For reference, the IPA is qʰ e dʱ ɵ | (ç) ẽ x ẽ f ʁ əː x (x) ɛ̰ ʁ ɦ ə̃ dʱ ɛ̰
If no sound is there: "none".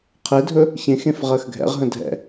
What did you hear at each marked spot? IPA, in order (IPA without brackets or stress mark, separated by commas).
ç, ɡʱ